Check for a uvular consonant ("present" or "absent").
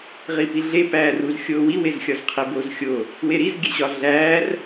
present